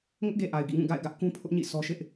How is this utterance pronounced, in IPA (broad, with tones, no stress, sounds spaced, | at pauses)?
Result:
ŋ ʊ˦ ʔ ɡ e˨ ʔ a˨ ɪ̯ ɡ ḭ˦˨ ŋ ũ˦˨ ɡ a̰˦˨ ɪ̯ ɡ ä˦ ʔ k ũ˦ pʰ ʊ˦ ʔ ɲ ḭ˦˨ sʰ ɔ˦ ʃ ɪ˦ ʔ